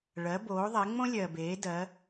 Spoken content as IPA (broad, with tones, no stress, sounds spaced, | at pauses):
ɭ ɜ˨˦ b oː˨˦ ðˤ e˨˦ ŋ͡m õ˥ lʲ ɜ˨ b eː˨˦ d ɜ˨˦